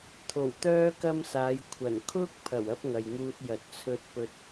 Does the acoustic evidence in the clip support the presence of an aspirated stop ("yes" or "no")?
yes